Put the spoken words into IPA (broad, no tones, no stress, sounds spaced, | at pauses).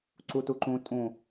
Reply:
ǀ u t u ǃ ũ tʼ ũ